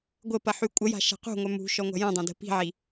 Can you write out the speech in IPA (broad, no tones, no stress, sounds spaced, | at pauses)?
ɡʷ ə p ɐ ħ y kʷʼ ə j a̤ ʃ a̤ q ṳ ŋʷ œ m ṳ ʃ ɔ ŋʷ a̤ j ɐ̃ dˤ ã d ə̤ p i̤ ʕ i